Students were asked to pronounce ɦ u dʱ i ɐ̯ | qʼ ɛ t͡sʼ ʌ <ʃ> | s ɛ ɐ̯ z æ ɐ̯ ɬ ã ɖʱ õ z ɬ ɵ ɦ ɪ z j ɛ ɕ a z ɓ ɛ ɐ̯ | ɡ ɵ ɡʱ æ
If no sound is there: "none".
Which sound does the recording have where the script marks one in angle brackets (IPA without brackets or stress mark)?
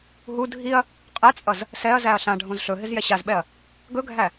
z